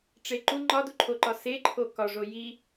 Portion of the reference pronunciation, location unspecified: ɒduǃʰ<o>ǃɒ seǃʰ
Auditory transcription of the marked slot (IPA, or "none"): o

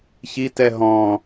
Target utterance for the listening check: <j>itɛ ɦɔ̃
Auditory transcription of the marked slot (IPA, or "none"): ç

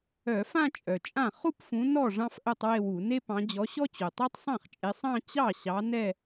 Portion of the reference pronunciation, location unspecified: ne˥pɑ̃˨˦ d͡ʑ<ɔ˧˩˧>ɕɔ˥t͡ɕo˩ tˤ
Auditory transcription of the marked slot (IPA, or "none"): ɔ˨˦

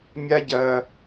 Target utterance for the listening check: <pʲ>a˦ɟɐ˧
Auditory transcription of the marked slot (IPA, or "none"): mʲ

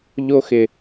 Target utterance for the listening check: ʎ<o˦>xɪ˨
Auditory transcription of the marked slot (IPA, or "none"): o˦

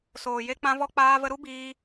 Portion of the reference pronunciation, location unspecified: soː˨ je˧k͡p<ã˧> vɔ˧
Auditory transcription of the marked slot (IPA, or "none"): ã˧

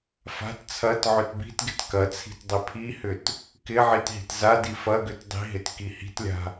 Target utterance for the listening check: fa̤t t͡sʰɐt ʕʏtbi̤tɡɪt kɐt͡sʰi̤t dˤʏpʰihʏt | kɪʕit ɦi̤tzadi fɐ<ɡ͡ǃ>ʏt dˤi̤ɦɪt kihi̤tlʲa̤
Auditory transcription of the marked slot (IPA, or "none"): ɡ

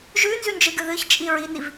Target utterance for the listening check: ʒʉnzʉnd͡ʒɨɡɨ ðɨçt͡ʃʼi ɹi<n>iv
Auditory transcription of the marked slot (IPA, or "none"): n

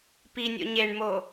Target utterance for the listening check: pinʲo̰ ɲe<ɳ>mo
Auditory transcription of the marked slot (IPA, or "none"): ɳ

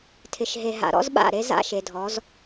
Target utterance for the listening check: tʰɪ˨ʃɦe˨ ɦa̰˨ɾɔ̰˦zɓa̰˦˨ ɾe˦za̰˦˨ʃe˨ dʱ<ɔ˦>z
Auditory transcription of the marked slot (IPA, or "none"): ɔ˨˦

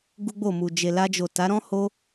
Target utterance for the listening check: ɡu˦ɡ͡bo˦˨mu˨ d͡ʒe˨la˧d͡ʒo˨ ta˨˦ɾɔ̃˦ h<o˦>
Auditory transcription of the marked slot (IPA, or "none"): o˦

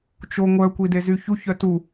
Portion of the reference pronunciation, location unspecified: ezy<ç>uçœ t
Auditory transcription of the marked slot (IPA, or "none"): ç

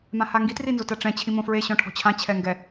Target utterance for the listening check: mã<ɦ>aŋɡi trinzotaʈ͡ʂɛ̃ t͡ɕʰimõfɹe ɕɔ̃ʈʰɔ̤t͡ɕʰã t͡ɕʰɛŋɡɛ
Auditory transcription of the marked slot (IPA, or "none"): h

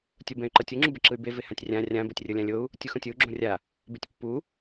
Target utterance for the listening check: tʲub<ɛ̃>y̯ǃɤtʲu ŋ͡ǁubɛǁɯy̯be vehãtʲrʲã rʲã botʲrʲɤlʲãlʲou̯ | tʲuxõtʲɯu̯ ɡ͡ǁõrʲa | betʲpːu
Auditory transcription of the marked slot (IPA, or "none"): ɛ̃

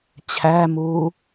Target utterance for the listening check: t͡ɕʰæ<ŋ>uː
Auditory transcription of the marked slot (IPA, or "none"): m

